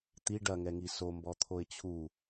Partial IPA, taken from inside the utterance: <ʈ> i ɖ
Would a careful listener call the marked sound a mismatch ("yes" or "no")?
yes